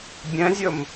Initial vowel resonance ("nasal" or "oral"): nasal